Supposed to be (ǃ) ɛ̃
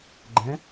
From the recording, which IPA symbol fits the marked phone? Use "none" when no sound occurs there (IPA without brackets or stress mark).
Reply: ɡ͡ǃ